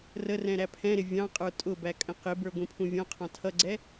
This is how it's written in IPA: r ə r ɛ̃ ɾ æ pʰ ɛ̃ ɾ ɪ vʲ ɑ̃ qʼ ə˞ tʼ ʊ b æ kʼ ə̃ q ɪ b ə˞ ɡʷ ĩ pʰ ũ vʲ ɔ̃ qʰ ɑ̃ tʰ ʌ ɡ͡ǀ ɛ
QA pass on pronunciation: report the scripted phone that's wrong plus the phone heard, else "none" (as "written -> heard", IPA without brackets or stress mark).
none